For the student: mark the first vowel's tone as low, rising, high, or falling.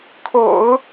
low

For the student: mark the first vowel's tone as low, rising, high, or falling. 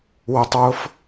low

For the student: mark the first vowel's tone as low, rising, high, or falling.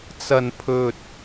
low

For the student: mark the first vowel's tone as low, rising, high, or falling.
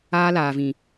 high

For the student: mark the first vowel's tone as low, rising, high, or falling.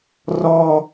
high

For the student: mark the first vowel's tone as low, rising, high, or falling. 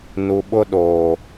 low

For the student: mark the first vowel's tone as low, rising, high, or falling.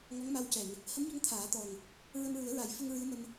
rising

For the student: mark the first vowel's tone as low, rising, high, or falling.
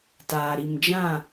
low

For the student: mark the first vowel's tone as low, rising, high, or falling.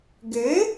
rising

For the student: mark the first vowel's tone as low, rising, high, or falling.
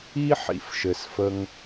high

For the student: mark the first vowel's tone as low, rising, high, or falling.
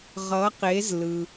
rising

